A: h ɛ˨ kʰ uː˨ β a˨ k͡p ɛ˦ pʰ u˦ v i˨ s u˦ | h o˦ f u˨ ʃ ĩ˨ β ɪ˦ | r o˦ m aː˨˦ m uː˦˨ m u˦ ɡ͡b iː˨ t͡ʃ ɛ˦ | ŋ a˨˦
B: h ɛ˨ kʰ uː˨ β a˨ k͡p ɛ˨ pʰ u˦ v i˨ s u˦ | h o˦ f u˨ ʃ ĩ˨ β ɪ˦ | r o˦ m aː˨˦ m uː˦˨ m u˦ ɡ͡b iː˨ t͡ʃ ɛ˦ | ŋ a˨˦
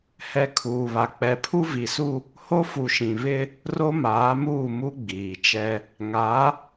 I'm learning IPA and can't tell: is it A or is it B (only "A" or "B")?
B